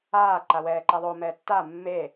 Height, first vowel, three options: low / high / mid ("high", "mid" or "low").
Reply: low